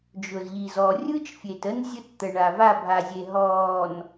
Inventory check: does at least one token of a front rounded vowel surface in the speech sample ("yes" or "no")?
no